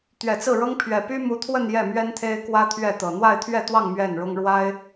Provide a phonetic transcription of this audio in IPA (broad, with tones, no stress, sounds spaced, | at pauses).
t̪ ɥ ɛ˨˩ t͡s ɹ̩˥˩ ɻ ɤ˥ ŋ pʰ ɥ ɛ˨˩ p y˥ m u˧˥ t̪ʰ w ə˥˧ n j ɛ˥˩ m ɥ ɛ˥ n t̪ʰ e˥ ɪ̯ k w ä˥ t̪ʰ ɥ ɛ˥˩ t̪ ɤ˨˩ n̪ w a˥˧ ɪ̯ t̪ʰ ɥ ɛ˥˧ t̪ w ɑ˥˧ ŋ m ɥ ɛ˥˩ n ɻ ʊ˥ ŋ ɻ w a˥ ɪ̯